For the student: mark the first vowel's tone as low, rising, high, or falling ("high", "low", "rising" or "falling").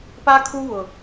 high